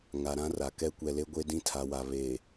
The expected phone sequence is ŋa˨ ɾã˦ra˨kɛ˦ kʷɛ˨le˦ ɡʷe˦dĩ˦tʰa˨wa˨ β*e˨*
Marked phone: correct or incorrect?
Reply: correct